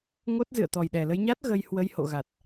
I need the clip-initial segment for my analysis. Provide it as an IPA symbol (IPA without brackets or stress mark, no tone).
ŋ